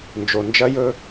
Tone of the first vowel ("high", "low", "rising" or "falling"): low